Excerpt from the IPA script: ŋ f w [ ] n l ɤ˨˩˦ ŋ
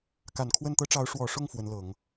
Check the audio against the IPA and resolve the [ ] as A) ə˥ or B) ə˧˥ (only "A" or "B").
B